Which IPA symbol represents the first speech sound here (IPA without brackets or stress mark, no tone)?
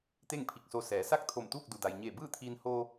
t̪